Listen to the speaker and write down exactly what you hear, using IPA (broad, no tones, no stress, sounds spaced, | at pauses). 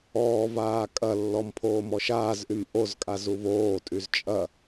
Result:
ɔː v aː kʼ ɐ lː ɔ m pʰ oː m ɔ ʃ aː z ʔ y m ʔ o z kʼ a z u v oː tʼ y z t͡ʃʼ ɐ